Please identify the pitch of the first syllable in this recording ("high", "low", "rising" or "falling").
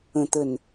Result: low